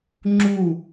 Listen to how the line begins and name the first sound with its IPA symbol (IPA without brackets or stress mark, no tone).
ŋ͡ǁ